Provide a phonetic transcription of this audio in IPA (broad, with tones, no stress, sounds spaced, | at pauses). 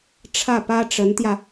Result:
ʈ͡ʂʰ ä˥˩ p ä˥ ʈ͡ʂ ə˧˥ n t̪ j ä˧